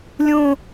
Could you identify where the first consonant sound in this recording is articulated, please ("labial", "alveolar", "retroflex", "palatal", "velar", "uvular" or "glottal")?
alveolar